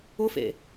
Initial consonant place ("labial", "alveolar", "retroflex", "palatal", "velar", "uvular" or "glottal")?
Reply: labial